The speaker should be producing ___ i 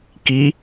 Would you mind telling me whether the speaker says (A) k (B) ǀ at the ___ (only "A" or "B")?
A